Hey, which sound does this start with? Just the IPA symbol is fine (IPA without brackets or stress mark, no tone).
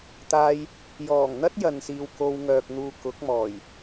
t̪